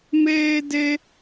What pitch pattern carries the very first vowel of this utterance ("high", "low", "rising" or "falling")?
high